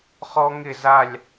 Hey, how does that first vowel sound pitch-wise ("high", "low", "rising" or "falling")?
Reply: high